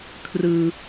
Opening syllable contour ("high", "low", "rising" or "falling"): low